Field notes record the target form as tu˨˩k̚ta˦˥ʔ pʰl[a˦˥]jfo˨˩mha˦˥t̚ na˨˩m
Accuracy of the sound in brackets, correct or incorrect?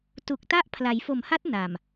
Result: incorrect